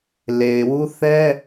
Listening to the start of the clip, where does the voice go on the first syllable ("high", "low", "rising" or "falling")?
low